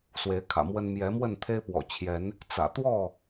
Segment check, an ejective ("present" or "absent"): absent